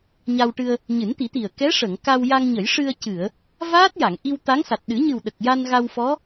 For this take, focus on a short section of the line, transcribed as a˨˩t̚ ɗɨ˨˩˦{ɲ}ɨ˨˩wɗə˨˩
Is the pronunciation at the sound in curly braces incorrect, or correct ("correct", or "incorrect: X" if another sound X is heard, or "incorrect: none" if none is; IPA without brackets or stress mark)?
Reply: correct